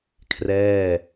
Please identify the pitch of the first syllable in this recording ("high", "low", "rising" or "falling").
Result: falling